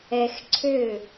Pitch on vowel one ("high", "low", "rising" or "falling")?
low